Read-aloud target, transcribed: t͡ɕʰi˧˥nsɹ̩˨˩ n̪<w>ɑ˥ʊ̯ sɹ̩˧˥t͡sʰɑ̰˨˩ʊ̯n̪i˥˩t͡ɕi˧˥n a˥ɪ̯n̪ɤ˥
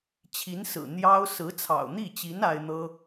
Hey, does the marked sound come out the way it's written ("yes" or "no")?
no